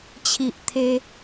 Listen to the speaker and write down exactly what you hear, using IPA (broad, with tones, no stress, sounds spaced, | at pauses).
t͡ɕʰ i˨ ʔ t̪ʰ e˧